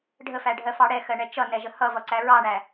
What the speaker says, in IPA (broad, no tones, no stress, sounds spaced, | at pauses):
ɖʱ ə f æ ɖʱ ɜ f ɑ ɽ ɛ x ɜ ɳ ɛ t͡ʃ ʌ n ɛ ʒ ə h ʌ v ʌ ǀ æ ɹ ɑ ɳ æ